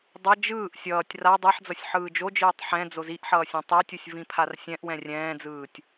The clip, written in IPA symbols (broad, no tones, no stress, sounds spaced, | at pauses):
dˤ ʌ d͡ʒ ɯː ʔ sʲ ʌː tʲ r a dˤ ɛ ħ d͡z ʌ sʲ ħ ɯː d͡ʒ o d͡ʒ ɯː tˤ ħ ɛ̃ d͡z o z i ʔ ħ ʌː sʲ ɛ̃ tˤ e tʲ u sʲ v ĩ pʰ a r sʲ ɛ̃ ʔ w ɛ̃ rʲ ɛ̃ː d͡z ɯː tʲ